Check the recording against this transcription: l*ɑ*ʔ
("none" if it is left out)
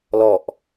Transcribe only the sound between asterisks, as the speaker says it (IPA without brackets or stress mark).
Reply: ɔ